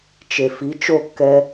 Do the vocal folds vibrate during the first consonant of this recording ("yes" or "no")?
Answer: no